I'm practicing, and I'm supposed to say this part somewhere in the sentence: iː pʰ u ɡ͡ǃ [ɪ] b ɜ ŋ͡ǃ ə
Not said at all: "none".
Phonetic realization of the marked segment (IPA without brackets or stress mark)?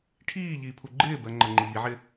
ɪː